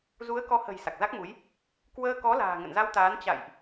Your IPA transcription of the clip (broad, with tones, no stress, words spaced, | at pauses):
zu˨˦ə̯kɔ˨˦hə̤˨˩j sa˨˩k̚za˦˥k̚mu˨˦j | kwəː˧kɔ˨˦ la̤ː˨˩ŋə̰˧˨nza˧wt̪aː˨˦n t͡ɕa̰˧˨jʔ